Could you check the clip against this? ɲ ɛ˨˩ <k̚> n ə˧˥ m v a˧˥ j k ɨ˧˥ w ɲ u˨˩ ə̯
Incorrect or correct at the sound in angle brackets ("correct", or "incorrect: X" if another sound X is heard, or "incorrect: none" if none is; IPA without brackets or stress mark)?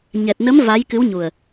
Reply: incorrect: t̚